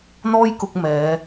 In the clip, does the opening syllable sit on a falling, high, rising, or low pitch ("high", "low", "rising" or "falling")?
high